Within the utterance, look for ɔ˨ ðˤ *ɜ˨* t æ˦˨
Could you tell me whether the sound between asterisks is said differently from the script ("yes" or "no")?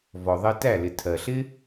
yes